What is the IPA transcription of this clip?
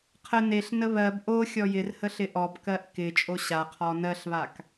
qʰ ə n e ɬ n ə β ɜ b ʔ o xʲ ɔ j ɪ r h ə ɬ ɪ ʔ ɔ b k ɜ ʔ k ɪ t͡ʃʼ o ɕ a qʰ ɔ n ɜ ɬ β a k

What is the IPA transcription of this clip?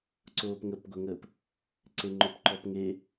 ǀ oː p ŋ ə p ɡʷ ɛ ŋ əː p | ǀ e ŋ͡ǃ o p ǃ ɔ p ŋ e

